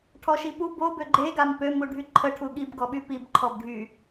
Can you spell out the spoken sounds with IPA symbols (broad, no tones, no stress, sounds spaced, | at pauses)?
ʈʰ ɔ ʃ i p u b o b ø ɡ͡ǃ e ɡ a m p ø m u ɖʱ y ǃʰ ə ʈʰ u ɠ i b ɡ ɔ ɓ y p i b ǃʰ ɔ b ɖʱ y